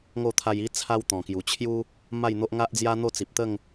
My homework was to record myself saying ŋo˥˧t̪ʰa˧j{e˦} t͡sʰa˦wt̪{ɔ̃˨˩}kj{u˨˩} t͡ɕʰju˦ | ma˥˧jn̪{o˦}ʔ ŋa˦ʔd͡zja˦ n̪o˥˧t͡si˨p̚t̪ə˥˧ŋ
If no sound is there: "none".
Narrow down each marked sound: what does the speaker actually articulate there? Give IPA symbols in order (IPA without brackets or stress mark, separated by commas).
i˦, ɔ̃˨˩, u˨˩, o˦